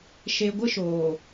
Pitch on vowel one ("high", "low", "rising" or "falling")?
low